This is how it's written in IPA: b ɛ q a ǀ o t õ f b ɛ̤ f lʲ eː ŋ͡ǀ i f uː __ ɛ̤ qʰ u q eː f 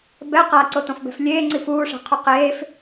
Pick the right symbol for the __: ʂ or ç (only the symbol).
ʂ